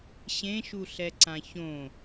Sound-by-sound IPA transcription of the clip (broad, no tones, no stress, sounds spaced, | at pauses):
ɕ ẽ ʃ u ɬ ɛ ǀ ã ç õ